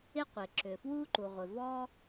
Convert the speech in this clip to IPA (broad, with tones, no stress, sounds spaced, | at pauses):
ɪ˥ qʷ ɪ˩ ǁ ʏ˩ f w u˥ ǃ u˩ ʁʷ ɪ˩ v ɔ˥